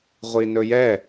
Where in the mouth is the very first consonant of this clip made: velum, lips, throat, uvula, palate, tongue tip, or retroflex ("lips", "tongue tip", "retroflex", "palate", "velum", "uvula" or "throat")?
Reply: uvula